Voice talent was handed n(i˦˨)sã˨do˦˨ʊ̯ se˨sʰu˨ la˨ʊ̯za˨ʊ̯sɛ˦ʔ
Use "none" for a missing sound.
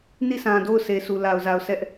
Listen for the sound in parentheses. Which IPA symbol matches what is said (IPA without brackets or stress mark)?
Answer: i˦˨